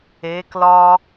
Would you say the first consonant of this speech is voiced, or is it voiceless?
voiceless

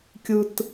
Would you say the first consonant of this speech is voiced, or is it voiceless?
voiceless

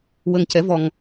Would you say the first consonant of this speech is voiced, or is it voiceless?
voiced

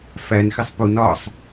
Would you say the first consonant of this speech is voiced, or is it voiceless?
voiceless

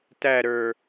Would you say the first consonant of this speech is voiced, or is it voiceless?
voiceless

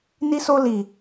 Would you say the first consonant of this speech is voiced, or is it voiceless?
voiced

